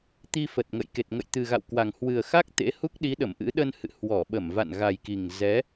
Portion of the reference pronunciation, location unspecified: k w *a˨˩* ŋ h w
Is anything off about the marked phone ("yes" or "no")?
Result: no